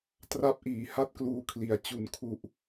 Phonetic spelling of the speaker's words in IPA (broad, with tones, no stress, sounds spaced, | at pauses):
t r a˦˥ p̚ ʔ iː˩˦ h a˥˩ t̚ k l uː˧ kʰ l i˩˦ a̯ t͡ɕ u˨˩ n kʰ u˨˩ ʔ